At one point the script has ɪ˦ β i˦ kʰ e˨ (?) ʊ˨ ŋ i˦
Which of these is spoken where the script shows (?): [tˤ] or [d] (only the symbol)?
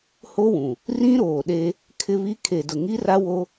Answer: d